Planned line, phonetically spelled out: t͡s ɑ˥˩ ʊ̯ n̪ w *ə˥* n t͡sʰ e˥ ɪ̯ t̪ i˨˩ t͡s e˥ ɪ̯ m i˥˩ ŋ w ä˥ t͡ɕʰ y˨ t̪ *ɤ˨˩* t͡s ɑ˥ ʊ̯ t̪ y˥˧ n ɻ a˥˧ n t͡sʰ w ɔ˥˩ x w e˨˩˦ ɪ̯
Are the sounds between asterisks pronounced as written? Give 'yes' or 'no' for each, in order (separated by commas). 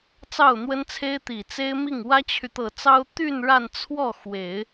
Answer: yes, yes